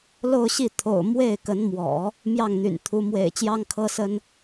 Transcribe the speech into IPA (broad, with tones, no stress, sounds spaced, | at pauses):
l o˥˧ ʊ̯ ɕ i˥˩ t̪ʰ o̰˨˩ ʊ̯ m w e˥˩ ɪ̯ k ə˧˥ n m w ɔ̰˨˩˦ | m j ɑ˥˩ ŋ n̪ y̰˨˩ n t̪ʰ u˧˥ m w ḛ˨˩ ɪ̯ t͡ɕ j ɑ˥ ŋ kʰ ɤ˥ s ə˥ n